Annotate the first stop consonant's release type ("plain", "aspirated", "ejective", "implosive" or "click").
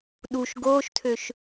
implosive